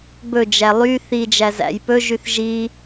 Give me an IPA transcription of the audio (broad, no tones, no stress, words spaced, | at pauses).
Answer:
bɵd͡ʒæ lˠy θid͡ʒæzæ̰j pɵʒyθ ʒi